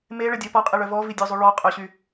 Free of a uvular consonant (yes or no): no